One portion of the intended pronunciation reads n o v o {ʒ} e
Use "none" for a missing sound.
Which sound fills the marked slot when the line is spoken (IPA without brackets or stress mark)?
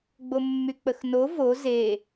z